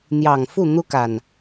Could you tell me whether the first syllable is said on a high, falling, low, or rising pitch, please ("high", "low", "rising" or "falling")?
low